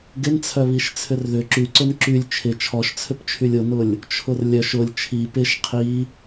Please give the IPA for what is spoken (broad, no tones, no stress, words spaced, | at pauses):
ɡɪnt͡sʰœβiʃ t͡sʰʏrðʏ ǁyǀʊn ǁylʲ t͡ʃʰɪ t͡ʃʰɔʃt͡sʰʏpt͡ʃʰylʲ ʊnʊlʲ | t͡ʃʰʊrlʲœʃ ʊlʲ t͡ʃʰi pɪʃ qʰi